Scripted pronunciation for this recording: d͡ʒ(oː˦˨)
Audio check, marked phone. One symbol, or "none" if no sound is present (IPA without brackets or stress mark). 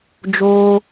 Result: oː˦